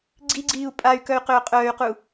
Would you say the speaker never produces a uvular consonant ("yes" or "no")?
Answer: no